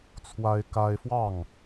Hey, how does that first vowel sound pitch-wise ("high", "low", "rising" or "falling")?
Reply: high